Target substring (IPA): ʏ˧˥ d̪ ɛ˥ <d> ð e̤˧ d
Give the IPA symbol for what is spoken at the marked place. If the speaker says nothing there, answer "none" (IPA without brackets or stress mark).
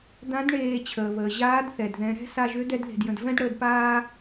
d